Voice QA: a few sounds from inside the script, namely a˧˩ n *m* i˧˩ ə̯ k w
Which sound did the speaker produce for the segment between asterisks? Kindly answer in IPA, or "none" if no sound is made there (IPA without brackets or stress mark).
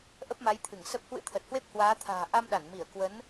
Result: m